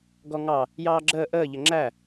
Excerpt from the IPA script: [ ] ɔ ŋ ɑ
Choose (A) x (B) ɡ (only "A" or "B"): B